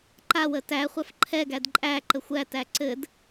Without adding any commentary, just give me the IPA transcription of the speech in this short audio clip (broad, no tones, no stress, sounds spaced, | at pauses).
ǃ a w ə t æ χʷ a f ǃʰ ɛ ɡ æ d ǃʼ æ ǃ ə xʷ æ t æ ǀ ɘ d